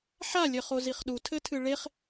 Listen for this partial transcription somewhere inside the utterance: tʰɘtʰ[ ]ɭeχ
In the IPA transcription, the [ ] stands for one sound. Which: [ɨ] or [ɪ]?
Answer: ɨ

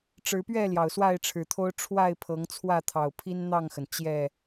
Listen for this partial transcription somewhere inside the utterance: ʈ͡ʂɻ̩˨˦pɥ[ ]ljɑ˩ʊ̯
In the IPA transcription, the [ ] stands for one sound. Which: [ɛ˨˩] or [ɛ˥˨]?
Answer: ɛ˥˨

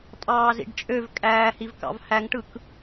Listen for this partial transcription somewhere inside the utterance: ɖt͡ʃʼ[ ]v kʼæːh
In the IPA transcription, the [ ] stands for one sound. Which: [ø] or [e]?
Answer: ø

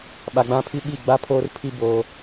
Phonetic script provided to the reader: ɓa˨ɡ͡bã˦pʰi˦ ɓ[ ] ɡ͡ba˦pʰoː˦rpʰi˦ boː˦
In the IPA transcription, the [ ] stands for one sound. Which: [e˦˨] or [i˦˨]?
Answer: i˦˨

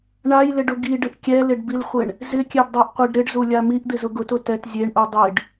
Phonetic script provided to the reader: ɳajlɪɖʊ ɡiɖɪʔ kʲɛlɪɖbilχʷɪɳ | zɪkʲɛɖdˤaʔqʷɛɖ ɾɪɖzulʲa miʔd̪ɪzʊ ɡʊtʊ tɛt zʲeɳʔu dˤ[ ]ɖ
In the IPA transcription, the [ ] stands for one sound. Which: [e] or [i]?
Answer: i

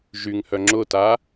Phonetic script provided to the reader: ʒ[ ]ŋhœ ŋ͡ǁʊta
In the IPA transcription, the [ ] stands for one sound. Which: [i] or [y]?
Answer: y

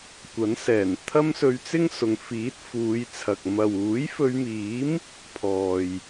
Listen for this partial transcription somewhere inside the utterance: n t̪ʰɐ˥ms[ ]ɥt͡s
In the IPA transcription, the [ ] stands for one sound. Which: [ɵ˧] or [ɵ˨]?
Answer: ɵ˧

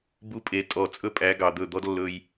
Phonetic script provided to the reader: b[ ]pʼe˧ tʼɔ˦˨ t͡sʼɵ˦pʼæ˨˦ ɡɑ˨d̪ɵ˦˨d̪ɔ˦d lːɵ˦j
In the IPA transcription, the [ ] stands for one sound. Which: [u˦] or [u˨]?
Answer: u˦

